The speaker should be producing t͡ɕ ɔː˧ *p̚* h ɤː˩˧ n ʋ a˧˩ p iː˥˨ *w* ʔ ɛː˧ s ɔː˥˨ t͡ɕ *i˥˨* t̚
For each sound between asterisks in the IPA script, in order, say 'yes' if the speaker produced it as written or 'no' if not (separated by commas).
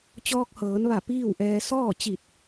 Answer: no, yes, no